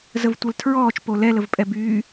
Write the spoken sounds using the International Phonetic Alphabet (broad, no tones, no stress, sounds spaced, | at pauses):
z ə v tʷ ɛ l tʰ ɹ ɔː t͡ʃ p o l ɛ l ə v pʼ ɛ b yː